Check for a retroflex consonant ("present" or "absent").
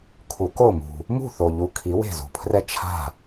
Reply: absent